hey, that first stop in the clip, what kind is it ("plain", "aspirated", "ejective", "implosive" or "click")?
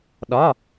implosive